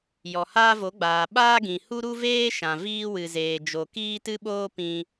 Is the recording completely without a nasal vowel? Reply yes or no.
no